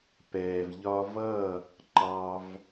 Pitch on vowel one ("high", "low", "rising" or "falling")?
low